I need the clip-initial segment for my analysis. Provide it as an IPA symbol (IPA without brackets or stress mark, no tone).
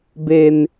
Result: b